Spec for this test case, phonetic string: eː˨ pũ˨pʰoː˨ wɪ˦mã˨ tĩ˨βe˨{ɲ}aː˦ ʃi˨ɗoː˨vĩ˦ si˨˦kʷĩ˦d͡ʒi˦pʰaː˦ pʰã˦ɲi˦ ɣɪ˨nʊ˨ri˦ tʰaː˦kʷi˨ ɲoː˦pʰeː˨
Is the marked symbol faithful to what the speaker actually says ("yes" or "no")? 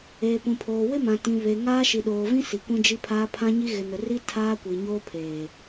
no